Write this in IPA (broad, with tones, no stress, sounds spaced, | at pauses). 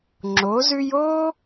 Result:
ŋ͡ǁ o˨˥ z ʉ˥ j o˥